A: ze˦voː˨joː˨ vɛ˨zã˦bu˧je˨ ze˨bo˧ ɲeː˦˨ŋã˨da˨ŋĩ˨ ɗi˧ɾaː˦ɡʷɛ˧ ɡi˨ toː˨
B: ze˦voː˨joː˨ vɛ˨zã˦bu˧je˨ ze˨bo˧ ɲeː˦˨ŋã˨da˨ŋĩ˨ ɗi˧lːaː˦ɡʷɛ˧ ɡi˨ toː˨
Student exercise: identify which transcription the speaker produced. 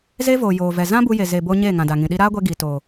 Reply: A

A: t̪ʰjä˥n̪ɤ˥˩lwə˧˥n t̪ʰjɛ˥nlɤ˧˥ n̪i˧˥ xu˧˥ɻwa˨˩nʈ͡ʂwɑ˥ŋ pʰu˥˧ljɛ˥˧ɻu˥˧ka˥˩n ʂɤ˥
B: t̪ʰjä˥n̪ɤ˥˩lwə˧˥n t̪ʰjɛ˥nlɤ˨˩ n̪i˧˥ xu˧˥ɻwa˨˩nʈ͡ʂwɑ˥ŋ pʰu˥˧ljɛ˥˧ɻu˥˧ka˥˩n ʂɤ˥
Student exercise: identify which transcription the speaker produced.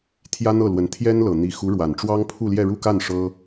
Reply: B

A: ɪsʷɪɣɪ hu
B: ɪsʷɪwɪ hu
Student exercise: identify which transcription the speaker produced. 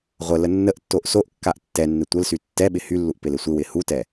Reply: B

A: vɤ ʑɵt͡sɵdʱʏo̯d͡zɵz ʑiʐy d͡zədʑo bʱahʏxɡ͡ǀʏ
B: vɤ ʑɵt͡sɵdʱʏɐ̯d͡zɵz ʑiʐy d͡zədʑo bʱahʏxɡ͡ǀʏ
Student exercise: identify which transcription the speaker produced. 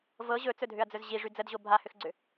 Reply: B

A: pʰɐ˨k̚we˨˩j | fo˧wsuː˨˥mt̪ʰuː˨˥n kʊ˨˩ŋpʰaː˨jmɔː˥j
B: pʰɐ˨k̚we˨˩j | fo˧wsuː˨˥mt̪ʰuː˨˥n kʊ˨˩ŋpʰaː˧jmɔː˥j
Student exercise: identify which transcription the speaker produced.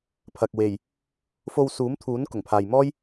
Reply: A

